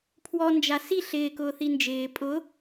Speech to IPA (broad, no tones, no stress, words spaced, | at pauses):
pʰwɔnd͡ʒa si ɬɪːkʊː θind͡ʒɪː pʼʊ